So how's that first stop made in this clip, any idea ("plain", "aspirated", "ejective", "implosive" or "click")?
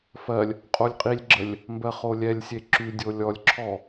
ejective